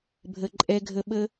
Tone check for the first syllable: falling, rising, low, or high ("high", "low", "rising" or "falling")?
low